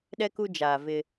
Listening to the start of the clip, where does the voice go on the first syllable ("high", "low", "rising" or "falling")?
high